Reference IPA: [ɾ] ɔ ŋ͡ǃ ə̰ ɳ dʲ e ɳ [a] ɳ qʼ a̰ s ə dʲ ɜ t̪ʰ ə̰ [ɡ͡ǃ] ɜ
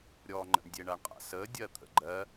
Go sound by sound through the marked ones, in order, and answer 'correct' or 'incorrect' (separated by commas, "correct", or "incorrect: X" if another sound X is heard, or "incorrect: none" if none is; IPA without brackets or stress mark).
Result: incorrect: ɾʲ, correct, correct